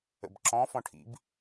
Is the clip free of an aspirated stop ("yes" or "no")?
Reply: no